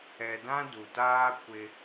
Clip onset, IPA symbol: ɛ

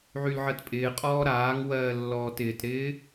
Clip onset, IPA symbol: ʕ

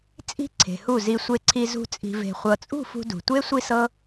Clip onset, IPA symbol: t͡sʼ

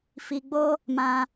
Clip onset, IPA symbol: f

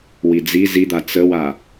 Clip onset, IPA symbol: w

